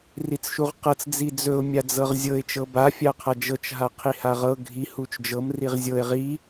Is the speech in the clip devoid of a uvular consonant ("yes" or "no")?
no